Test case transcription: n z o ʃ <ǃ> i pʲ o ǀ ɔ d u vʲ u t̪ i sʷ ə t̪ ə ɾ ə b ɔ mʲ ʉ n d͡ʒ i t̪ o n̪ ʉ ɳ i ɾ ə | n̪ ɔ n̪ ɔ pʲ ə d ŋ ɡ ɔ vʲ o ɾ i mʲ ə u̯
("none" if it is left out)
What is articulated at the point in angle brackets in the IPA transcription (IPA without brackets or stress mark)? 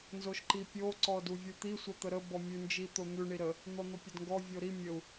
ǃ